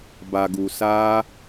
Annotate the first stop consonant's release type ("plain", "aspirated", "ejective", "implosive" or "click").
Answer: plain